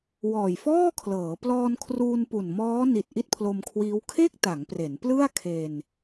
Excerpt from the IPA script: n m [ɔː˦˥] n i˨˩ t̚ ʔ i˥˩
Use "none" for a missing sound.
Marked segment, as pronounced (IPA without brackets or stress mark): ɔː˦˥